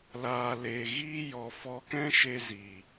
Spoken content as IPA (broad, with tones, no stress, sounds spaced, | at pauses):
l aː˨ l e˨ ɣ iː˦ j ɔ˧ f ɔ˧ k ɛ̃˦ ʃ e˧ z i˨